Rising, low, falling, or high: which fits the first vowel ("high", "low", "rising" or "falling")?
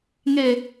low